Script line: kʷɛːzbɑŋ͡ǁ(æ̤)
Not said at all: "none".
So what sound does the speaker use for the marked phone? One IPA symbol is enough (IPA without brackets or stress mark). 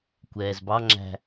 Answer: æ̤